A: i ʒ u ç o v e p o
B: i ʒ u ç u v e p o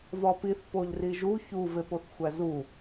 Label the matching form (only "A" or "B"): B